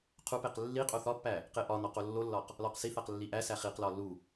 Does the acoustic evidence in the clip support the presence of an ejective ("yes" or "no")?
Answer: yes